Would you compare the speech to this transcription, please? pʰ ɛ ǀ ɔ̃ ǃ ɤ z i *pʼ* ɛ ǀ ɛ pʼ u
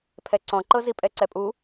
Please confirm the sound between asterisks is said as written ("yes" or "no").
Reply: yes